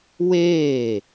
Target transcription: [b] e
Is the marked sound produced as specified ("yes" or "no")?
no